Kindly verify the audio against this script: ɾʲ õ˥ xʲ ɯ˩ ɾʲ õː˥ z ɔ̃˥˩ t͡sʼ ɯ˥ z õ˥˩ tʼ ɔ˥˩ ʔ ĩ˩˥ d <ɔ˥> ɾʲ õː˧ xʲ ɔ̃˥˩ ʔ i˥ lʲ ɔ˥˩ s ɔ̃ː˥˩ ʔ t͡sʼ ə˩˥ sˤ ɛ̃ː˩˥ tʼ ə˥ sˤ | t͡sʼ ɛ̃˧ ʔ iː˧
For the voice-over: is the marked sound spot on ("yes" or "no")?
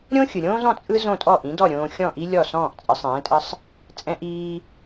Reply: no